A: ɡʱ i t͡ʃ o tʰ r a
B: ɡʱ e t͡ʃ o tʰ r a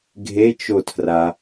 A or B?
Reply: B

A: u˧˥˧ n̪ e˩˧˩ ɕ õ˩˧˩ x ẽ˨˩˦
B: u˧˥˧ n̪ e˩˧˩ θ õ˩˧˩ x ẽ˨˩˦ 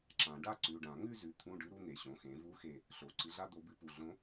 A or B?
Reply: A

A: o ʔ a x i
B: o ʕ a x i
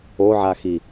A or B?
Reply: B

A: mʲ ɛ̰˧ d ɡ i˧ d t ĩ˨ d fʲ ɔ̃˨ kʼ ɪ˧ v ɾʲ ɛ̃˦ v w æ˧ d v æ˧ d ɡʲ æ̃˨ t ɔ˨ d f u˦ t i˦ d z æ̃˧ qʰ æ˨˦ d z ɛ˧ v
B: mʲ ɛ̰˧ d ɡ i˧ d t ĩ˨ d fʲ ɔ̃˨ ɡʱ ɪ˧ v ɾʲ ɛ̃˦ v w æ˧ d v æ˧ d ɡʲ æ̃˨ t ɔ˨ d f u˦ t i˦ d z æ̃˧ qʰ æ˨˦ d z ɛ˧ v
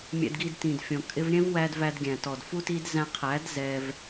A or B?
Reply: A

